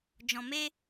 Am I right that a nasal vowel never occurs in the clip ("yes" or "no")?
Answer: no